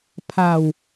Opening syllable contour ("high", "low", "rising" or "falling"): low